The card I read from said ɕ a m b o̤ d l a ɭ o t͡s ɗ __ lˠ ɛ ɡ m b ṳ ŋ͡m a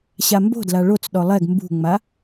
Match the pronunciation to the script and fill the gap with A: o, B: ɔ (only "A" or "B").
B